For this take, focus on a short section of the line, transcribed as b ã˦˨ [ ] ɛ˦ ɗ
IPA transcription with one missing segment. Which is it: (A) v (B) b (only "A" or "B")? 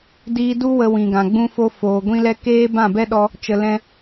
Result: B